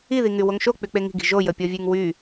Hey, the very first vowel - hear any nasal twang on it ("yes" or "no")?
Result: no